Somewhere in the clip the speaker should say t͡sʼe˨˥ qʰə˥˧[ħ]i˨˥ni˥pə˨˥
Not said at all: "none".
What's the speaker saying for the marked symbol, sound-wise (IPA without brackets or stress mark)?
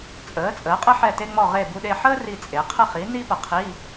χ